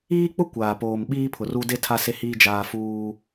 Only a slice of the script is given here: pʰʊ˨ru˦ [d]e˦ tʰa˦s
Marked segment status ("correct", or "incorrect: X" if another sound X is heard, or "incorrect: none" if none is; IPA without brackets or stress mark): correct